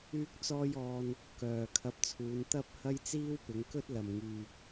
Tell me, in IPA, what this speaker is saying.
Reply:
yː˥k̚t͡sɔː˥jɔː˧n | kœː˨ kʰɐ˧p̚t͡sʰuː˨˧n t̪ɐ˥p̚ hɐ˥jt͡siː˥wpɪ˨˧ŋ kɵ˥t̚lɐ˨mŋyː˨k̚

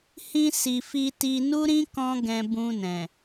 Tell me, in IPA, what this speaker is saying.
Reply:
hĩ˧ si˨fi˧ti˧ nu˦ɾĩ˦ kɔ̃˦ɡɛ̃˧ bũ˧nɛ̃˨

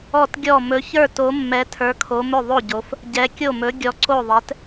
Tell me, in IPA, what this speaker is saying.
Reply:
ɔ˥˩tɡʲɔ˥˩ mɵ˨˥çə˞˥˩ to˨˥mːɛ˨˥ tʰə˞˨˥kʰo˨˥mɵ˥˩ ðˤo˥˩ɟo˨˥f | ɟɛ˨˥ kʲo˥˩mɵ˨˥ ɡʲɔ˨˥ǀo˥˩ðˤɛ˨˥t

